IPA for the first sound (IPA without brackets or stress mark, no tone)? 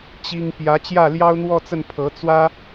t͡ɕ